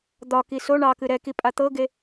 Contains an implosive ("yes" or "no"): no